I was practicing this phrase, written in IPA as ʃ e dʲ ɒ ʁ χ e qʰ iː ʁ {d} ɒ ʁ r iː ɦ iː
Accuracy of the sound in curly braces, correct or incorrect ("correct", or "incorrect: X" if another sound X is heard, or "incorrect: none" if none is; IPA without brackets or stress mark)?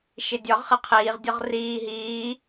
incorrect: dʲ